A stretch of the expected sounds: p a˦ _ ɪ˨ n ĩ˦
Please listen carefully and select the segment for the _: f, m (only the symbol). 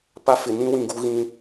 f